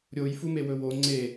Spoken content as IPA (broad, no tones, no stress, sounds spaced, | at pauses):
ɾʲ o j f u m e w ɵ w o ŋ͡ǀ e